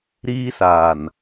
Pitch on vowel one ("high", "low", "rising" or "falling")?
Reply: high